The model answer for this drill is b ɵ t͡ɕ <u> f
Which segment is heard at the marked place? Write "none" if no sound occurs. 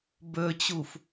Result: u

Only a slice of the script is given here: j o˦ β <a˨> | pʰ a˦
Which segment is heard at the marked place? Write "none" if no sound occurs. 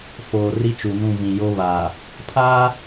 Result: a˨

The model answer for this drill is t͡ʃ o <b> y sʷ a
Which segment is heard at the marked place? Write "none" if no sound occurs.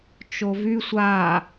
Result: v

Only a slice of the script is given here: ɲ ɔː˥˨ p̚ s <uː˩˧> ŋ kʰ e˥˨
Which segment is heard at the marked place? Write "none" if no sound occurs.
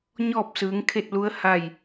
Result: ɯː˩˧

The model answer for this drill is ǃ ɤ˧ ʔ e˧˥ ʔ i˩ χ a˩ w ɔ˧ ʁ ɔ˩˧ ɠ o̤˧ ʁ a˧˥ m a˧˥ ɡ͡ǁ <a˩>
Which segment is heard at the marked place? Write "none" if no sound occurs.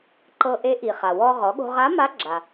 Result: a˩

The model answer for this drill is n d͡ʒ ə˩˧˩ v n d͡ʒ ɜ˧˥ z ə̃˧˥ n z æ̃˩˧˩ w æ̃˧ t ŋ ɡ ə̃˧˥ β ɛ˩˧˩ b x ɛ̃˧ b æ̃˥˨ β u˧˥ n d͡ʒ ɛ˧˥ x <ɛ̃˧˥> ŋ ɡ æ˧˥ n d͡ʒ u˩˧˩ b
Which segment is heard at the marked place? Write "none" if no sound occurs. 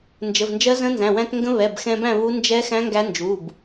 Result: æ̃˧˥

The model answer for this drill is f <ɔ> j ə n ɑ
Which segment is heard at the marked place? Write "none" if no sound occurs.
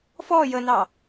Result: ɔ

